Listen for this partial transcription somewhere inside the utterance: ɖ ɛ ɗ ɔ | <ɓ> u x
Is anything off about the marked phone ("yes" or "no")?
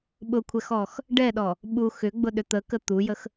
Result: no